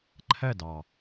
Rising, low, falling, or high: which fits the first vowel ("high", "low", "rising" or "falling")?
falling